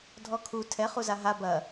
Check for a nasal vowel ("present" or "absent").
absent